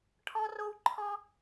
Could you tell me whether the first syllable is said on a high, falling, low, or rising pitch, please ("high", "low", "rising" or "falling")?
high